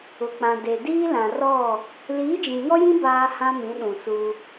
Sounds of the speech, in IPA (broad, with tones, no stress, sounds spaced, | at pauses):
ʊ˨ k͡p ã˨ d e˨ d iː˦ l ã˨ r ɔ˦˨ | l iː˨˦ d͡ʒ ĩ˨ ŋ ɔ˦ j ĩ˦ b aː˦ h ã˦ m ĩ˨˦ ɗ ũ˨ s u˦